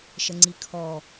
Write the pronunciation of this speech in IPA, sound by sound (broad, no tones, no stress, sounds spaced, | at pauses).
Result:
ʃ ə ŋ͡ǀ i kʰ ɔ